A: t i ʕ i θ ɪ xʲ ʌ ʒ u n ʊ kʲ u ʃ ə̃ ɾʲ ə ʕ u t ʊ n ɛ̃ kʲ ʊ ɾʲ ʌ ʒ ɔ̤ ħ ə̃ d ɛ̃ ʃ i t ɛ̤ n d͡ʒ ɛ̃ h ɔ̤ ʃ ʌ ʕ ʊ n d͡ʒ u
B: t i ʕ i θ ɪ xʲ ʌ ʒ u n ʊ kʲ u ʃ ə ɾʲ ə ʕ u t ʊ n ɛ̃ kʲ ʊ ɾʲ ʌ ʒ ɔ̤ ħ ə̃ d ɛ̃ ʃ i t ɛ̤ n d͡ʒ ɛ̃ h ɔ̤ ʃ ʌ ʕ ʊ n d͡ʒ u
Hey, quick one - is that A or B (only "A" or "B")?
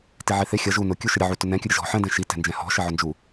B